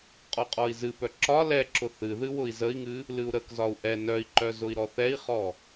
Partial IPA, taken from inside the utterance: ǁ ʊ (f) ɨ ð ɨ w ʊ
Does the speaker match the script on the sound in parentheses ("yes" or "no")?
no